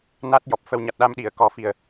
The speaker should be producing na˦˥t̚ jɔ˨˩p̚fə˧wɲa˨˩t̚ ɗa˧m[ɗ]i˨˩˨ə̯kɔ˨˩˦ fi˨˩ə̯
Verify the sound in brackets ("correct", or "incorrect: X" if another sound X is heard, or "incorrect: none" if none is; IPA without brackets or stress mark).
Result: correct